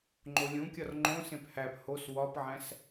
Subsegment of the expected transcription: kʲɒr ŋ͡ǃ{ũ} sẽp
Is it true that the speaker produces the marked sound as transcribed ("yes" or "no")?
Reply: no